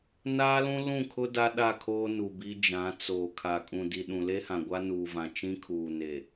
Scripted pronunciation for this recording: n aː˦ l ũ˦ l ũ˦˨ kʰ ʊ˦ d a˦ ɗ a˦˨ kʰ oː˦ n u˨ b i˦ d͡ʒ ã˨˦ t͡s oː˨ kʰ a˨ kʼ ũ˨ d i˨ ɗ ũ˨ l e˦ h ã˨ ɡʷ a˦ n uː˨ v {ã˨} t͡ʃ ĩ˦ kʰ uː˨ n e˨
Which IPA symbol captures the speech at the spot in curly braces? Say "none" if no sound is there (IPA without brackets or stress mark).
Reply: ã˨